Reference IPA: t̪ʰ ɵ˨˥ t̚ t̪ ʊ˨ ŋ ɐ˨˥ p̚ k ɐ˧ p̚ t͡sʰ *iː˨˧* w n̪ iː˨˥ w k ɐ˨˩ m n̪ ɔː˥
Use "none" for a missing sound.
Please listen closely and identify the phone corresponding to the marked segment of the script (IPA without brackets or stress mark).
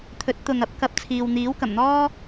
iː˨